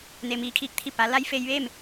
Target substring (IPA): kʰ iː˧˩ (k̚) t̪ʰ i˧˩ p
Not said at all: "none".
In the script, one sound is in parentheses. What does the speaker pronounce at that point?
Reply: k̚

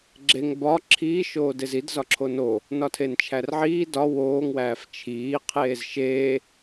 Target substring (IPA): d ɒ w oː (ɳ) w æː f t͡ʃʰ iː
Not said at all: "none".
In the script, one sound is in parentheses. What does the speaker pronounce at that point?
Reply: ŋ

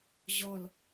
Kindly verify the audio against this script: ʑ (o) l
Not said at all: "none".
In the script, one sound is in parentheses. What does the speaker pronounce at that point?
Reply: ɔ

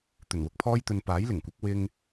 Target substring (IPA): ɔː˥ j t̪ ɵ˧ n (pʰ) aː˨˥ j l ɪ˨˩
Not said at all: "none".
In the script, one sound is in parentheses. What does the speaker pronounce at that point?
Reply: p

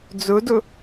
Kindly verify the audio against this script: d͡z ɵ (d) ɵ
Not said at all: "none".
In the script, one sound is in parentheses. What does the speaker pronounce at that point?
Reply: d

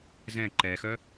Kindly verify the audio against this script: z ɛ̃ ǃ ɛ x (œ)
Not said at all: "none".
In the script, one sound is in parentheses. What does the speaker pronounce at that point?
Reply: œ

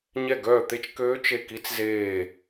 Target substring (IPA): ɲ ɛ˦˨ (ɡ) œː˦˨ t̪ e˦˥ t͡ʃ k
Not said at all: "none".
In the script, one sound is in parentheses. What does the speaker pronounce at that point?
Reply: ɡ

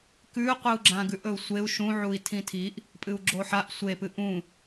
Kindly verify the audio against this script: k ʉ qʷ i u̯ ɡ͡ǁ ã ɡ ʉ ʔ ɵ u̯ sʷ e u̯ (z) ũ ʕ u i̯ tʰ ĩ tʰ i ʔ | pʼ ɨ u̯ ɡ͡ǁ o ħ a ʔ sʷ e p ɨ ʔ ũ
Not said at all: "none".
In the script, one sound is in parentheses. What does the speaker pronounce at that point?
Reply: ʃ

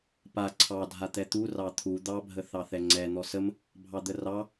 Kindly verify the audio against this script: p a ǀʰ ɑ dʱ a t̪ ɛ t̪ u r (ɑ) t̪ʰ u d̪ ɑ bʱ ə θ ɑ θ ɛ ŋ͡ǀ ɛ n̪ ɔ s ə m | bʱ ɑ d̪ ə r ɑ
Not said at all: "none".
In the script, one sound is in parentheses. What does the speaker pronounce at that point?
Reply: ɑ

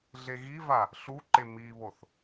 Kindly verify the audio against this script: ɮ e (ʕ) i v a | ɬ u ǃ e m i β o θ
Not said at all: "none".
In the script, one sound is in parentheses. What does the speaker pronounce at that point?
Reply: ɣ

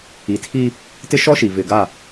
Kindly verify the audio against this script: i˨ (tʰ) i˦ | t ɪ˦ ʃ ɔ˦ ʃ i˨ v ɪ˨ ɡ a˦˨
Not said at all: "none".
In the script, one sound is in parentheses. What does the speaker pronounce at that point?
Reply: tʰ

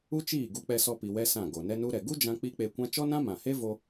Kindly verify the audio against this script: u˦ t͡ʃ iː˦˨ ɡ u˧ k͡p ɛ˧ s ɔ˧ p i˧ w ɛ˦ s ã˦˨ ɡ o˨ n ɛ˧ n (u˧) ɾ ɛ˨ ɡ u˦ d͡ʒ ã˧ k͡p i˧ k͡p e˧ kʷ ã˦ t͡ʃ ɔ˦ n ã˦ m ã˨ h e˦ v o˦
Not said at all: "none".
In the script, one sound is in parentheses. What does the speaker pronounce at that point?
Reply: u˧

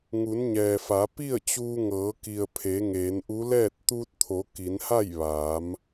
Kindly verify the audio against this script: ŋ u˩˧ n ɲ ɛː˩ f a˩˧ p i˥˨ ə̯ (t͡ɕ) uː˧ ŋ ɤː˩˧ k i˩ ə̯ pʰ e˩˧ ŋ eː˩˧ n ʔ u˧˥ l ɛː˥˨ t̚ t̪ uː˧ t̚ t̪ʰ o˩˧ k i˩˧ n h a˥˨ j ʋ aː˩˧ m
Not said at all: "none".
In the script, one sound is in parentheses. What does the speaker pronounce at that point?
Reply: t͡ɕ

